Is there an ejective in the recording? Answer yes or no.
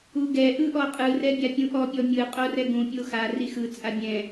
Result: yes